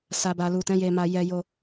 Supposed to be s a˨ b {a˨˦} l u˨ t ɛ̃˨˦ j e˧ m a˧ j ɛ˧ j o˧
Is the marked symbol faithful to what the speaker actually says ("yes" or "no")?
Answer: no